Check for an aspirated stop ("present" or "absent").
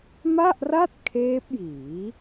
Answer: present